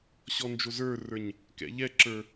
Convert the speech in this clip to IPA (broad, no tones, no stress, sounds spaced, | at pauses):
ɕ ɔ n d͡ʒ o z ə˞ r ə˞ ɲ | k ɛ̰ ʎ ɛ ǁ ə˞